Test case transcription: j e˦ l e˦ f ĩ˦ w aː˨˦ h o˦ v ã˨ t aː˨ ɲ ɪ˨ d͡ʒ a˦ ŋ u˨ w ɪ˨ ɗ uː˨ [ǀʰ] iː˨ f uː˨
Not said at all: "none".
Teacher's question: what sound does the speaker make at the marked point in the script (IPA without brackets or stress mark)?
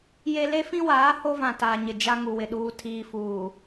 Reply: tʰ